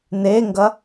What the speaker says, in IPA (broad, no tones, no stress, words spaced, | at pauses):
neŋɡɐ